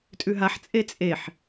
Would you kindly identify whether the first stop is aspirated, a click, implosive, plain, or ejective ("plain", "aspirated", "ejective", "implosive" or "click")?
ejective